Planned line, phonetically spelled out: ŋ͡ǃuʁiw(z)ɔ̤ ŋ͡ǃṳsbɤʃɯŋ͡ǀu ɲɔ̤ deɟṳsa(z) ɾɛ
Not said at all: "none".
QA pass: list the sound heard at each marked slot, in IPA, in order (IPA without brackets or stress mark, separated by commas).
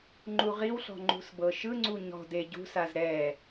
ɬ, z